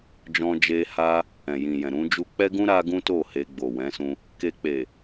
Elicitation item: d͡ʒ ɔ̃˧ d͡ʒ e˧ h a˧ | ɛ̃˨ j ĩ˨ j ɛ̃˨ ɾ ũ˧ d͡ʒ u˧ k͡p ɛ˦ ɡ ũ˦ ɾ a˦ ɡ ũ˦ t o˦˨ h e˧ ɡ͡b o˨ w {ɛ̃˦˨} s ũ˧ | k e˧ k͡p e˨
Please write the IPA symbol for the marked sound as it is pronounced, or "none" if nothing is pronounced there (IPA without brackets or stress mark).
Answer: ɛ̃˨˦